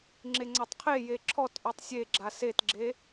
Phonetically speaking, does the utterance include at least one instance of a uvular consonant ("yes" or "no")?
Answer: yes